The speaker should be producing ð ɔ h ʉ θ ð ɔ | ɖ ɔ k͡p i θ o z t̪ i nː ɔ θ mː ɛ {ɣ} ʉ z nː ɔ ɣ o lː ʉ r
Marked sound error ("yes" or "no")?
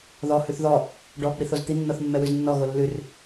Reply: yes